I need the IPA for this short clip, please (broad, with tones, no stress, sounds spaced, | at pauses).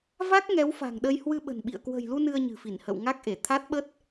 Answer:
v a˦˥ k̚ ŋ ɛ˨˦ w f a̤˨˩ ŋ ɗ ə˧ j h w ɨ˧ ɓ ə̤˨˩ n ɓ ḭ˧˨ ə̯ k w ə̤˨˩ j l u˧ n ɨ˧ ə̯ ɲ ɨ̤˨˩ f i˧˩ n h ə̰˧˨ w ŋ a˦˥ k̚ ʔ e˧˩ t̪ʰ a˦˥ t̚ ɓ ə˦˥ t̚